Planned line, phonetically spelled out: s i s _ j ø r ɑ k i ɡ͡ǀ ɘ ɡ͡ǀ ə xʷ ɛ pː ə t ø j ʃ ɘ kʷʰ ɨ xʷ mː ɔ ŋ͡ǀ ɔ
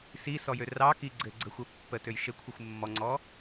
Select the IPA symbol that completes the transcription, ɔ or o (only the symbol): ɔ